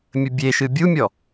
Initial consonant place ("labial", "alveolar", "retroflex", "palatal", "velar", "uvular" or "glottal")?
labial